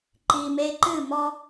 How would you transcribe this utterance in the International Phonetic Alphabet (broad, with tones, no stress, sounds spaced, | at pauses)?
ǃ i˨ m e˧ ǃ ɨ˦˨ m ɔ˧